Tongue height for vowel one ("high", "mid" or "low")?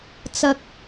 low